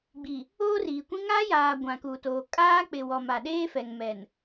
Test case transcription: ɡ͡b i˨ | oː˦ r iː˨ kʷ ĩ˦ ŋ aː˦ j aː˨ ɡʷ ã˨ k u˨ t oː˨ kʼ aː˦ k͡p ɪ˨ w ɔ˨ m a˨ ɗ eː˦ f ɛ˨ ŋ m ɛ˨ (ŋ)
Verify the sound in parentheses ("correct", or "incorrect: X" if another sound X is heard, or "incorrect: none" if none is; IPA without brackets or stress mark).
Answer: incorrect: n